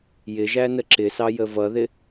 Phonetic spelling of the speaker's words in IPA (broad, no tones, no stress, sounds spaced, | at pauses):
j ɪ ʒ æ n ə ǁ ɪ s ɑ j ə v ʌ ð ɪ